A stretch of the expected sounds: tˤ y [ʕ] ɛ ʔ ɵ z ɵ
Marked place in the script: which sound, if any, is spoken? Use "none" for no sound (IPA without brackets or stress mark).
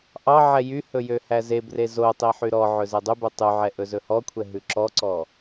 ʕ